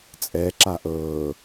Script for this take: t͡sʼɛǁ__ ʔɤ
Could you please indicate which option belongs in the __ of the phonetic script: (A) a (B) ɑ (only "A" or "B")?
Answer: A